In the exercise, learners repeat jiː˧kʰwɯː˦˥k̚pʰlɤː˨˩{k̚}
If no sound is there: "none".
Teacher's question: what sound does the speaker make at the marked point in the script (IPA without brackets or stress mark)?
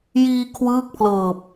p̚